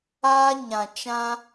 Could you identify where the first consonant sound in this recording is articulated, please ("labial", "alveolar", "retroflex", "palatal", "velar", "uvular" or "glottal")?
palatal